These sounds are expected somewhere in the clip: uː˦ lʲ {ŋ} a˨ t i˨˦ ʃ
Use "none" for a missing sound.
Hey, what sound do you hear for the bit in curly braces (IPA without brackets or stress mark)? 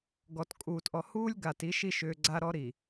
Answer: ɡ